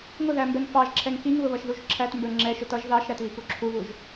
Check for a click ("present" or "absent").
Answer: present